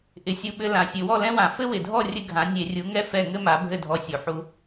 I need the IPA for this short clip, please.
ʔɪ˨˩sʲu˧ɓɘ˧ lã˨˩sʲɘ˧˩˧ wɔ˥˨lɛ̃˥wã˧˩˧ fɘ˥ wɪ˨˩dʱɔ˥˨ rʲɘ˥ɡʱã˨˥ nʲe˧˩˧rʲu˨˥ŋɛ˥ fɛ˥˨ŋɘ˥ma˨˥ bʱɘ˥˨dʱɔ˧sʲu˨˩ ħu˧

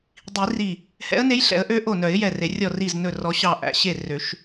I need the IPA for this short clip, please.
dˤi˨˩˦ri˧˩ | hɛ̰˧˥ə̯ne˧˥jɬɛ̰˨˩˦ə̯ʔø˧˥ ʔo˧˩nœ˨˩˦ɪ̯ jɛ˧˩re˨˩˦ rʲɔ˧˩ri˧˩z nɵ˧˩rɔ˨˩˦ ɕɑ˧˩ʔæ̰˨˩˦ ɕe˧˩ rø˨˩˦ʃ

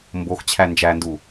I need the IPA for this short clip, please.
mboxt͡ɕʰæ nd͡ʒændu

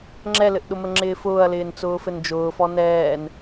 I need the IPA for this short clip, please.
ŋ͡ǁɛlɘʔɗʊmə ŋ͡ǁɪːfʊːɐ̯lɪːn t͡sʊːfɘnd͡ʒʊːfɔ nɛːn

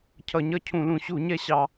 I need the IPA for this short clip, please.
cʰʌ˧˩˧ɲʌ˥˨cʰũ˧˩˧lũ˧˩˧ ɕu˧˩˧ɲɛ˥˨ɕɑ˧˩˧

